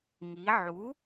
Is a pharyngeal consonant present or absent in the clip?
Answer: present